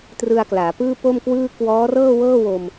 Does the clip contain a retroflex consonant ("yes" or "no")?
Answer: no